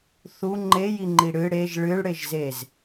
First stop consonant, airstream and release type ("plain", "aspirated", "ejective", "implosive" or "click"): click